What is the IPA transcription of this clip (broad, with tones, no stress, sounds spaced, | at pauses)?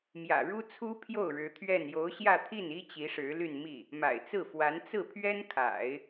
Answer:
m j ä̰˨˩ ɻ u˥ t͡sʰ u˥ pʰ j o˥˩ ʊ̯ ɻ ɻ̩˧˥ t̪ʰ ɥ ɛ˥˩ n j o˧˥ ʊ̯ ɕ j ä˥˧ t̪ʰ i˥˩ n i˥ t͡ɕ i˧˥ ʂ ɻ̩˧˥ l y˥˧ n m i˥˩ | m a̰˨˩ ɪ̯ t͡s ɹ̩˥˩ f w a˧˥ n t͡s ɹ̩˥˩ pʰ ɥ ɛ˥ n kʰ a̰˨˩˦ ɪ̯